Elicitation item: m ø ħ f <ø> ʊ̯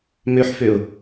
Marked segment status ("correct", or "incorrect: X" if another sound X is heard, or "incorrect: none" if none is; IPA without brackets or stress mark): correct